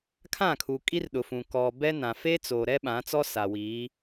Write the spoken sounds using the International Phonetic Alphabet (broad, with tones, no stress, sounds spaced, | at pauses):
kʰ ã˦˨ kʰ uː˨ kʼ i˦ r ɗ ʊ˨ f ũ˨ k ɔ˨ b ɛ˦ n ã˨ f e˦ t͡s o˨ ɾ ɛ˦ ɓ ã˨˦ t͡s ɔ˦ s a˨ w iː˨˦